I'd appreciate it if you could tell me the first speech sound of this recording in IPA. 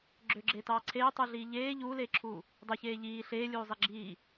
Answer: ɡ͡ǁ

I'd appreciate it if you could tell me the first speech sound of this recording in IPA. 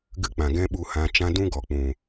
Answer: ɡ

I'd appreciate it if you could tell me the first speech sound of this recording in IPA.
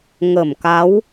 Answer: ŋ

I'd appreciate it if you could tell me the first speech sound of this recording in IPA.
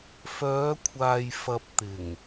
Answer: f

